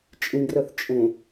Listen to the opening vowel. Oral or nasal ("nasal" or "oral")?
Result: nasal